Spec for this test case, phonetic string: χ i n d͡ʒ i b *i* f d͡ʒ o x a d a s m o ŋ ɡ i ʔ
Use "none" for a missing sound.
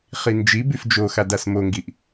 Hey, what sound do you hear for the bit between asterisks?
y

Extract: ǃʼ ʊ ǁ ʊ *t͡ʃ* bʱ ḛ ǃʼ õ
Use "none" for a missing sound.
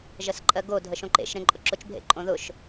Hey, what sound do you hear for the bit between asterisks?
t͡ʃ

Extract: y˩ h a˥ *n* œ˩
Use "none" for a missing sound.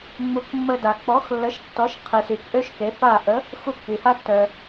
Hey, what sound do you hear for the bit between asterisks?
tː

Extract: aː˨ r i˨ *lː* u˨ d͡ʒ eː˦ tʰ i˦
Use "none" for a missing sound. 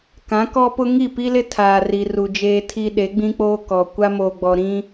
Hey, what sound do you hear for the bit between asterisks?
r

